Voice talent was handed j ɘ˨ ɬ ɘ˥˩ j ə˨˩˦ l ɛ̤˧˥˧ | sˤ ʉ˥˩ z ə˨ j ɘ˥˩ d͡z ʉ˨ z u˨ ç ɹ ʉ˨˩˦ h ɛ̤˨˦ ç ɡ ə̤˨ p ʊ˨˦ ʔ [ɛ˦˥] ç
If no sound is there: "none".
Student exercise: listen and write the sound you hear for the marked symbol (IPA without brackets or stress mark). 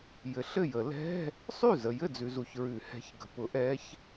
ɛ˦˥